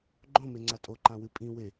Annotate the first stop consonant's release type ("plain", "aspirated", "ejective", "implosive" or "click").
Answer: click